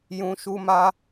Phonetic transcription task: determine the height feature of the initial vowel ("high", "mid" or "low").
high